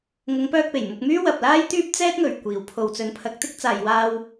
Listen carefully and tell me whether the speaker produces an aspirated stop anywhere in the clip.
yes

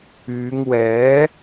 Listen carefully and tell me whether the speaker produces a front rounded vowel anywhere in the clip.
yes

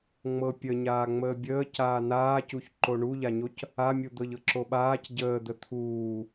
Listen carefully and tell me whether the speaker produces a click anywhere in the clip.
yes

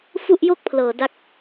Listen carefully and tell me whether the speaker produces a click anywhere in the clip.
no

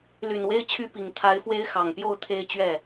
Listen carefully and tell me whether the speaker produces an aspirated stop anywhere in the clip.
yes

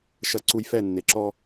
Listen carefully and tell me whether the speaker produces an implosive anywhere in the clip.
no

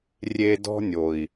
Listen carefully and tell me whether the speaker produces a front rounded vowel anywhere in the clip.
no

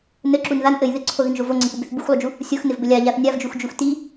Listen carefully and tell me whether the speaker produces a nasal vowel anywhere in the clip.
no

